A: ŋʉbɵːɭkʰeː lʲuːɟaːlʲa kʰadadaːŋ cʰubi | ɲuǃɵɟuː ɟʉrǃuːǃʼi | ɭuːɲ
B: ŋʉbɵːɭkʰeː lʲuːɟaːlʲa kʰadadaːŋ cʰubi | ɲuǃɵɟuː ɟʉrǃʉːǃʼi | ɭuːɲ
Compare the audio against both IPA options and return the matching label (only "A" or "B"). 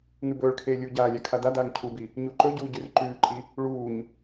B